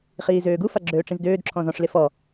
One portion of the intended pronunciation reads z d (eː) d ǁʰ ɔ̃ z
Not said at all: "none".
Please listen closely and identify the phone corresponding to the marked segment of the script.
øː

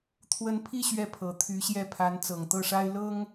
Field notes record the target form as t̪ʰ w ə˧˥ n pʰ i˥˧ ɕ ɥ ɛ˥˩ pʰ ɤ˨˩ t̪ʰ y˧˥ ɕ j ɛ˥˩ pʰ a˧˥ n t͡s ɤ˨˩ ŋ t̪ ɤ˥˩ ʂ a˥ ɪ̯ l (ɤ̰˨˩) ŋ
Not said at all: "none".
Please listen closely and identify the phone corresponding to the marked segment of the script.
ɤ˥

